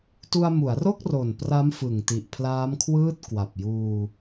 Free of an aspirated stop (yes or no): no